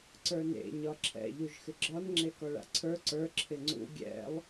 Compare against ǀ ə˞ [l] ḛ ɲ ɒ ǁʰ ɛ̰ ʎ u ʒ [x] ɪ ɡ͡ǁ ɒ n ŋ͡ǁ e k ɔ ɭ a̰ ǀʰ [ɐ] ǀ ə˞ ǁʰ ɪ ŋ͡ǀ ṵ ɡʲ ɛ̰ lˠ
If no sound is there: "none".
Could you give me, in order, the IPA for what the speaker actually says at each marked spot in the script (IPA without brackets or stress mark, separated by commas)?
n, x, ə˞